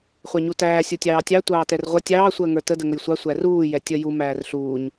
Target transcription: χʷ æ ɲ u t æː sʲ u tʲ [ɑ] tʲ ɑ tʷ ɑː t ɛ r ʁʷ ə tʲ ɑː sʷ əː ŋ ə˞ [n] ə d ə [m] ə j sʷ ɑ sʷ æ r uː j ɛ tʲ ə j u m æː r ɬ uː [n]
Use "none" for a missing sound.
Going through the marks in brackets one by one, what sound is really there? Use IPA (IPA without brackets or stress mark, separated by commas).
ɑː, t, ŋ, ɲ